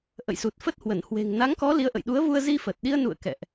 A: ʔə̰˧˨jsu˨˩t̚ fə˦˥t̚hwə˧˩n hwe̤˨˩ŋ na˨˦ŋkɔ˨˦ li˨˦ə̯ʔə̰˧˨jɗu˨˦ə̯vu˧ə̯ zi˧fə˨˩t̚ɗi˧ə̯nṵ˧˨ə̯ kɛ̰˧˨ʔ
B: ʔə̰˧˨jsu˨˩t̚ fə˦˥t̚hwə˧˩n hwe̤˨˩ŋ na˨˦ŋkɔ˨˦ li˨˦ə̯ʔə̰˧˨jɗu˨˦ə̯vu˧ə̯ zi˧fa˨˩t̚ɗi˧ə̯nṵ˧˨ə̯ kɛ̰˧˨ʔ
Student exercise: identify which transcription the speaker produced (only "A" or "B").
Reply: A